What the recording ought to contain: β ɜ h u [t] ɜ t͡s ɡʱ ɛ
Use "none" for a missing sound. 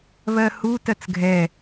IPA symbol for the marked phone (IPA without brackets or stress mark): t